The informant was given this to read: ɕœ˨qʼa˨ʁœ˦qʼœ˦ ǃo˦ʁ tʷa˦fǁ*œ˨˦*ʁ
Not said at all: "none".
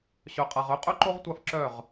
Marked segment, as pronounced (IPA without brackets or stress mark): œ˦˨